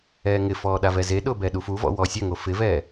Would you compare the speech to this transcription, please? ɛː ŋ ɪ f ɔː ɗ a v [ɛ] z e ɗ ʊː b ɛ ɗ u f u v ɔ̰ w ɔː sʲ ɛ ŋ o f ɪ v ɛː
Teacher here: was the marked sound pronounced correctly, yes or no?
yes